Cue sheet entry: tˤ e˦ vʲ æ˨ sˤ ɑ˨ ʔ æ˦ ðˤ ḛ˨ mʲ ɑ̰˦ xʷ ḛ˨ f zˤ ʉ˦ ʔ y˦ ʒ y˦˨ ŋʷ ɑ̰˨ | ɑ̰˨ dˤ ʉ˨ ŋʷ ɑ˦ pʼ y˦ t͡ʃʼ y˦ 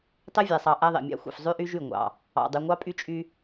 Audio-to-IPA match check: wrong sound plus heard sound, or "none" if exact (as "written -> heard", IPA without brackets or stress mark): none